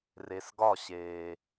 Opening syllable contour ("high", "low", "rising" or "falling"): low